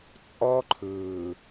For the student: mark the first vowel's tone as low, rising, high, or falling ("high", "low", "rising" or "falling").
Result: high